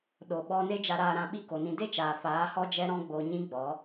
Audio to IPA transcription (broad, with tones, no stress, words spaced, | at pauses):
ɗo˨ɓɔ˧ ne˦d͡ʒa˧ɾaː˧ɾã˧ ɓi˦ko˨nĩ˧ de˦t͡ʃaː˨ faː˨˦hɔ˦d͡ʒɛ˦ ɾɔ̃˦ɡ͡bo˧ɲĩ˦ɡ͡bɔ˨˦